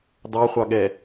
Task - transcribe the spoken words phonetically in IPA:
d̪ ɑ χʷ ɑ ɠ ɛ

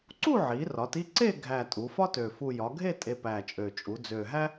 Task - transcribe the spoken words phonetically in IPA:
ǀ u˥˧ ʕ i˩˧ r ɒ˩˧ t i˥˧ ǀ e˥˧ ɡʱ æ˨˩ tʼ u˩˧ f ɒ˥ t ø˨˩ f u˨˩ j ɒ˩˧ ɡʱ e˥˧ tʼ e˧ p æ˨˩ t͡ʃʼ ø˨˩ t͡ʃʼ u˩˧ d͡z ø˨˩ ɦ æ˥

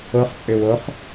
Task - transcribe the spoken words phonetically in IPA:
o χ t͡sʼ ʏ w o χ

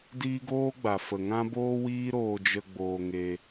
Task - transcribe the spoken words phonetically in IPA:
d iː˦ ɡ oː˦ ɡ͡b a˨ f ə˨ ŋ ã˦ b oː˦ w iː˦ ɾ oː˧ d͡ʒ ə˧ ɡ͡b oː˧ ŋ e˧

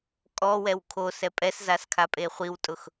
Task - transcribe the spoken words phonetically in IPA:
kʼ ɔ w ɛ w kʰ o s ɛ pʼ ɛ s z a s kʰ a pʼ e χʷ i w tʼ ʊ x

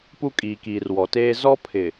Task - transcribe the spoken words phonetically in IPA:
p u˦ kʼ iː˨ k iː˨ r w ɔ˨ t eː˦ z ɔ˦ pʰ ɪ˨

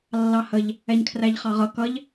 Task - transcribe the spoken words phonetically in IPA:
lː ɑ h ə ʎ | ɛ ɲ kʰ r æ ʎ χ ɑ ʁ ʌ k ʌ ʎ

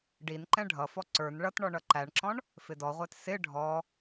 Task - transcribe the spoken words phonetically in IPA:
ɖ i n ǃ ɛ̃ ɖʱ ʌ f ɔ ǀ ə˞ n ɭ ʌ t ɳ ɔ ɳ ʌ ǃ æ ɳ ǁ ɔ̃ ɳ | f ɪ d ɔ ʁʷ æ t s ɪ ɖʱ ɔ

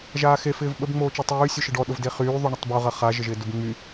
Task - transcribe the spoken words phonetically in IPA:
ʒ aː x e f ɪː v ɓ ə b ŋ͡m oː t͡ʃ ø tˤ yː sʲ ø ʃ ɪ ɖ ɔ ɗ ʊ v d e χ yː ðˤ y ɳ ə tˤ b o ʁ ɐ χ a ʒ ə ʒ ɪː d ʊ b ŋ͡m y

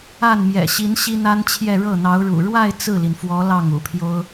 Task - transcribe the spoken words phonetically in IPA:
a˥˩ n m j ɛ̰˨˩ ɕ i˧˥ n ɕ i˥ n̪ a˥ n t͡ɕʰ j ɛ˥˧ ɻ ɤ˥˩ n̪ ɑ˧˥ ʊ̯ ɻ ṵ˨˩ ɻ w a˥˧ ɪ̯ t͡s ɹ̩˥˩ l i˩ n f w ɔ˧˥ l ɑ˥˩ ŋ ṵ˨˩ pʰ j o˥ ʊ̯

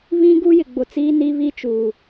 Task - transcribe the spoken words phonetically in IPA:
β ĩ˦ ɡ u˦ j ɪ˨ ɡ͡b ʊ˨ t͡s iː˦ n i˦ β i˦ t͡ʃ uː˨

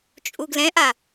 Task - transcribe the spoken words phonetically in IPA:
t͡ʃʼ u ɡ l ɛ̃ ʔ a

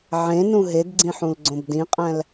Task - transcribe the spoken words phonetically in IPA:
ʕ ẽ n ũ ɦ e d ɡ͡ǀ ĩ ħ ũ l ɡ͡ǀ õ b d ĩ qʼ æ̃ l

